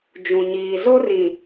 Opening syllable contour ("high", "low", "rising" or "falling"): low